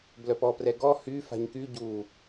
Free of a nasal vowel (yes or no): yes